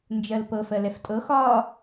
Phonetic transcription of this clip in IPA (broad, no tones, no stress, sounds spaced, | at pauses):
n d͡ʒ ɜ l p ɤ f ɜ l ɛ f tʼ ɤ x ɒ